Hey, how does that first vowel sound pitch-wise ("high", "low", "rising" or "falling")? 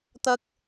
high